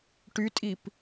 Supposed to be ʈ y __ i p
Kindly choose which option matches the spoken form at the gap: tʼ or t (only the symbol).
tʼ